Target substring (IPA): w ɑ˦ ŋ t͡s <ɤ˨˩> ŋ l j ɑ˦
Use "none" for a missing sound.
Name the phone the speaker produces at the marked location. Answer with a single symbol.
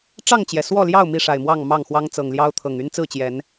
ɤ˨˩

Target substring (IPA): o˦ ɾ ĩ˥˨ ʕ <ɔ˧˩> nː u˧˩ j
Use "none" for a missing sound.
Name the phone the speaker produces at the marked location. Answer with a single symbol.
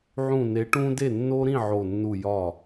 o˧˩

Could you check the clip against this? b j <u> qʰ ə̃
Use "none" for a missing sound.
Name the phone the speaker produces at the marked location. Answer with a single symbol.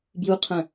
u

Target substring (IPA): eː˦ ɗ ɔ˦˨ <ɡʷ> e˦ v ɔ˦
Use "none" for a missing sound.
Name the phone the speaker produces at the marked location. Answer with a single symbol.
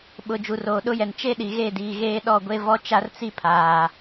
ɡʷ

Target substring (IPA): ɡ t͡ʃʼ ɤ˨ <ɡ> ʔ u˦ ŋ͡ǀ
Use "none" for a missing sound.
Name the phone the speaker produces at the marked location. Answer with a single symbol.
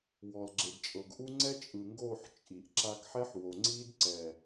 ɡ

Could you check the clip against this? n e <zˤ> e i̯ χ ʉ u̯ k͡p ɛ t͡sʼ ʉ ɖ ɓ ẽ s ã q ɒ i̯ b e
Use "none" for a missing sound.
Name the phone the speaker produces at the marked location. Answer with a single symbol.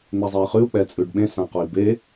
zˤ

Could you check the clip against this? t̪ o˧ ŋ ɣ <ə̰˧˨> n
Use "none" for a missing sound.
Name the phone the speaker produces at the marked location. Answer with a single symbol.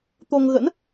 ə̰˧˥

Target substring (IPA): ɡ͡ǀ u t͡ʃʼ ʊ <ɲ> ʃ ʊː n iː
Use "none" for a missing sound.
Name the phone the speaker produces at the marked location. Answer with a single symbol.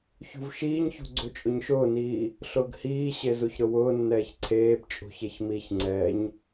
ɲ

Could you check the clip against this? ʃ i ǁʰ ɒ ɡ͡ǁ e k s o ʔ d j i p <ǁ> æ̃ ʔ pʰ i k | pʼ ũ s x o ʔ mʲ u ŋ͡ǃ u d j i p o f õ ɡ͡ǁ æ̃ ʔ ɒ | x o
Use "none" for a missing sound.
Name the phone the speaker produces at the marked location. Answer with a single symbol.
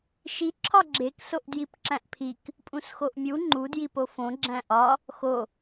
ǁ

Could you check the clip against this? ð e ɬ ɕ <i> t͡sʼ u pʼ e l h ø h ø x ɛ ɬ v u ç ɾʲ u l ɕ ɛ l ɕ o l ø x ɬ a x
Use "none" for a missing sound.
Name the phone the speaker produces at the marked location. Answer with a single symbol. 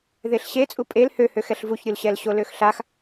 e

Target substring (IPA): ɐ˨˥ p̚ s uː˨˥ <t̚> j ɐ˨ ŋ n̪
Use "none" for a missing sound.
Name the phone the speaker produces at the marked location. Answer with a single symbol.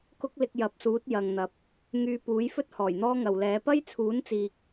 t̚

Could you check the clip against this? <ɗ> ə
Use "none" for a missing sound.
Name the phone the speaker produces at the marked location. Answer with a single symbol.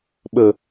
ɓ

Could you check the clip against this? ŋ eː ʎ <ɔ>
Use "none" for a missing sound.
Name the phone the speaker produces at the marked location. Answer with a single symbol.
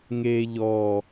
ɔ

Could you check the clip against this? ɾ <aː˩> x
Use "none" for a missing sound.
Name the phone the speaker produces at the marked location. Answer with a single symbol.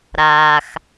aː˩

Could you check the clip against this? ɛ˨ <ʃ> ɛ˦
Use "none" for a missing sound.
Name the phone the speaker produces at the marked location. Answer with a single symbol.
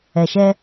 ʃ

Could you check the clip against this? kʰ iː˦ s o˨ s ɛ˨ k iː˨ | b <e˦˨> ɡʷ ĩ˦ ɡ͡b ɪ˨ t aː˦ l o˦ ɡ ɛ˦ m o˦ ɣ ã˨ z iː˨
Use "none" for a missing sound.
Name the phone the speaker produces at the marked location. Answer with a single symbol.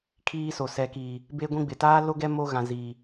e˦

